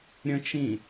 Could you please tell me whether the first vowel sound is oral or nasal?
nasal